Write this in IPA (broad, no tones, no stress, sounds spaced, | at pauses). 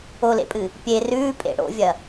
o l ḛ pʼ ɨː | pʲ e r ʉː pʼ ḛ ɽ o̰ vʲ ɐ